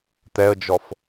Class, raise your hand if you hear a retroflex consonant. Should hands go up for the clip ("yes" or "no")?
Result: no